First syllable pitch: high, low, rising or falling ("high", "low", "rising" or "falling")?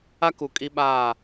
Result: high